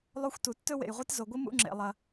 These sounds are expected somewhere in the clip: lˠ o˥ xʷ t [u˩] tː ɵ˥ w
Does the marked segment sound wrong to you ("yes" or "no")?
no